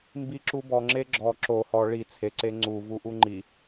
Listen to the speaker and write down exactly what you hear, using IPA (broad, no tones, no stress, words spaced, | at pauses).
mbiǁubɔ ŋ͡ǁeɡ͡ǁɔ ǁo hɔ ɭi t͡sʰe ǀeŋ͡ǀu vuʔuŋ͡ǃi